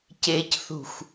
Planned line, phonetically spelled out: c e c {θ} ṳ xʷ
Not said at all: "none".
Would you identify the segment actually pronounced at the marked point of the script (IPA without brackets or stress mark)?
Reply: θ